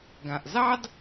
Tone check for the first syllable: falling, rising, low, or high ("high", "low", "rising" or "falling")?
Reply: low